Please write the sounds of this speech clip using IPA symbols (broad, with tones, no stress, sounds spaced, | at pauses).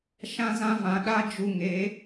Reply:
ʃ ã˦ z ã˦ v ã˨ ɗ a˦ d͡ʒ u˧ ŋ e˨˦